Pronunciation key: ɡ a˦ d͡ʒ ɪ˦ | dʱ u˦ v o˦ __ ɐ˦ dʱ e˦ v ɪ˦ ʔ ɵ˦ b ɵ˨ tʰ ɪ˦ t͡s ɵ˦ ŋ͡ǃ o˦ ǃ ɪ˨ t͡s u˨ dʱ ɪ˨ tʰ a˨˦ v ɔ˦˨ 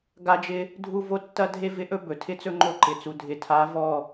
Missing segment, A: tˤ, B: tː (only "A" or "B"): B